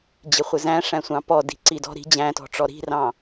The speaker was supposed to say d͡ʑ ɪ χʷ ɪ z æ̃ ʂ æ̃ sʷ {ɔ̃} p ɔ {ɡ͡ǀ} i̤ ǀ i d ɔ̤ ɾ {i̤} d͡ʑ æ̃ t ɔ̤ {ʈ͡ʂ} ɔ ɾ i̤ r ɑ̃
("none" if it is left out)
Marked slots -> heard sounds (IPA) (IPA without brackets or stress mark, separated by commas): ɑ̃, d, i̤, ʈ͡ʂ